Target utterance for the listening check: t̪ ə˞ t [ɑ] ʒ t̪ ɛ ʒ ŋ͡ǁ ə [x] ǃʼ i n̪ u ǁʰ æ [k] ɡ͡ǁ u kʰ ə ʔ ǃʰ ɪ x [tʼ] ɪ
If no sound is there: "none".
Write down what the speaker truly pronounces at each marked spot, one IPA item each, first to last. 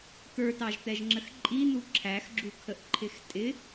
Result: ɑ, x, x, tʼ

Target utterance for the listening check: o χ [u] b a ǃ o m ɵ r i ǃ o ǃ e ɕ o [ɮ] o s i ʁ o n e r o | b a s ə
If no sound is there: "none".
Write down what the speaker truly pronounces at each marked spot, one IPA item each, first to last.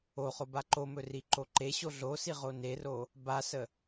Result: o, ɮ

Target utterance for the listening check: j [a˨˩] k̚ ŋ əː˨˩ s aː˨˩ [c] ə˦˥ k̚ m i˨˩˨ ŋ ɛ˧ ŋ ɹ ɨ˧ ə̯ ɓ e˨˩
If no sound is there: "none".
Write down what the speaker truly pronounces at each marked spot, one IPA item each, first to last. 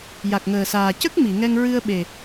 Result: a˨˩, c

